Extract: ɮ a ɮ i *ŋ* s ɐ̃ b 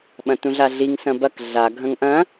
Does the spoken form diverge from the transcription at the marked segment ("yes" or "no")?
no